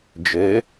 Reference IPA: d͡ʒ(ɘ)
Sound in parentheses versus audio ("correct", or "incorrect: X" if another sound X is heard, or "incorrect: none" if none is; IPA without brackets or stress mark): correct